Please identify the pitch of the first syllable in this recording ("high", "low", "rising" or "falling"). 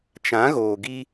rising